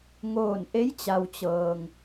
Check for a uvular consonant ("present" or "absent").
absent